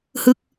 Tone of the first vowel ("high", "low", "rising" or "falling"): falling